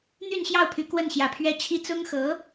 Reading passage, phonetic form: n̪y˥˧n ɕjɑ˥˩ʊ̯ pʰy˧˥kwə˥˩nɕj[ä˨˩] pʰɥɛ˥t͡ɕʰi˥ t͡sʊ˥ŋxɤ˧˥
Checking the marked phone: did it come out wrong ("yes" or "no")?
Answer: no